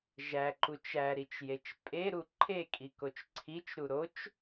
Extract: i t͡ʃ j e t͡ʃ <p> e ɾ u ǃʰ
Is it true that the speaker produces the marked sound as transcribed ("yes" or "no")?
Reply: no